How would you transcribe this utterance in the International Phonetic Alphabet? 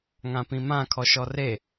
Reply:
ŋ ã p ĩ m ã kʰ ɔ ʃ ɔ r e

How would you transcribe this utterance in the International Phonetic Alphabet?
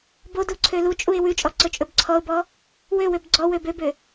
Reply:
b o d u ǀʰ ø l u t͡ʃʼ u ɪ̯ w ʉ t͡ʃʼ ɔ ǀ ɵ t͡ʃʼ ɵ b ǀʰ ɔ ʊ̯ b ɔ | w ø w ø b ɡ͡ǀ ɔ w ø b ø b ø

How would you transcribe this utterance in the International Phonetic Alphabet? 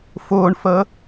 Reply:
f ʊː ɳ f ə

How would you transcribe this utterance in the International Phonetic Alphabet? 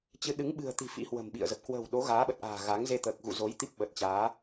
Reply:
t͡ɕ ɨ˨˦ ɗ ɨ˨˦ ŋ ɓ ɨ̤˨˩ ə̯ t̪ i̤˨˩ f ḭ˧˥ h w ə̤˨˩ m ɓ ḭ˧˨ ə̯ z ə˨˩ p̚ k w ə̤˨˩ w ɗ o˨˦ ɣ aː˨˦ ɓ ə˨˩ t̚ ʔ a̤ː˨˩ ɣ a˨˦ ŋ z e˧ t̪ əː˨˩ k̚ ɣ ṵ˧˨ z o˨˦ j t̪ i˦˥ p̚ ɓ ə˨˩ t̚ t͡ɕ aː˨˦

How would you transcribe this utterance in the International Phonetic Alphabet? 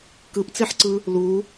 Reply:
k ɯ p t͡s e ħ ǀ ɯ | l u

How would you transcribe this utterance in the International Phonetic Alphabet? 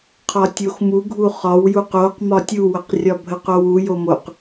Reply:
qʰ ɒ tʲ o x m u ɡʱ u χ ɒ w j u q o q m ɒ tʲ u w ə q rʲ ɒ bʱ ə q o w u j o m o q

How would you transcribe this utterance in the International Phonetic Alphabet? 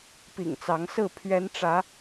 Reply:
p ḭ˨˩ ŋ t͡s ɑ˨˦ ŋ s ɹ̩˥˨ pʰ ɥ ɛ˨˦ n ʈ͡ʂ ä˨˦

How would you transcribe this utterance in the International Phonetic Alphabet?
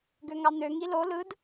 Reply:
ɡ ø ŋ ɑ n̪ ø ŋ i l o l ɯ d

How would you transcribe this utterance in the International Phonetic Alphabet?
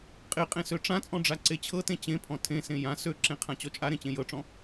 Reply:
qʼ e qʼ ẽ s ø ʈ͡ʂ ã t͡sʼ ɔ̃ ɖ͡ʐ a ǀ e t͡ɕʰ ɤ t ẽ t͡ɕ ẽ pʰ ɔ̃ tʰ ẽ s ẽ j ã s ø ǁ ẽ qʰ ã t͡ɕ ɔ t͡ʃʼ a ɾ ẽ t͡ɕ ẽ j ɤ ʈ͡ʂ ɔ̃

